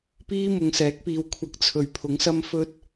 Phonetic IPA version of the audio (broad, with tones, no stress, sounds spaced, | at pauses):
p iː˥ m ʊ˨ ŋ s ɛː˨˥ k̚ p iː˨˧ w kʷʰ ɐ˧ k̚ t͡sʰ ɵ˨˩ ɥ pʰ ʊ˨˥ ŋ s ɐ˥ m f ɵ˥ t̚